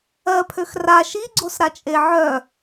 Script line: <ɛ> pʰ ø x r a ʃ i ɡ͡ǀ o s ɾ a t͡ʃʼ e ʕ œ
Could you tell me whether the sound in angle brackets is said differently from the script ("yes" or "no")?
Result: yes